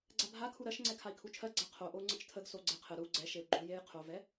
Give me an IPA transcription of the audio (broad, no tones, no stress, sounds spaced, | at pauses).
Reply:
ɡ͡ǀ a bʱ a kʰ u ɾ ɜ ʃ ŋ͡ǀ ɛ kʰ a i̯ kʰ u t͡ʃʰ ɜ ɡ͡ǀ a qʰ o ʔ o u̯ ŋ͡ǀ ə t͡ʃ tʰ ə ɡ s o ɡ͡ǀ ɛ qʰ ə ɾ u ɡ͡ǀ ɛ ʃ e u̯ ɡ͡ǃ o j e j qʰ o v ɛ